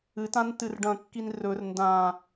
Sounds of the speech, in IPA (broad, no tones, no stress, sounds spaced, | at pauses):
ɨ t ã n t ɨ r ɖ ɐ̃ kː i n r ɵ r n d ã